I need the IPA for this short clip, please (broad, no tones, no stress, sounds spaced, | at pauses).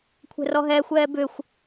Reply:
kʷʰ ɛ̤ r ɔ ɦ ɛː xʷ ɛː b ʏː xʷ